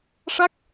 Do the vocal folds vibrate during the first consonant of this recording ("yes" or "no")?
no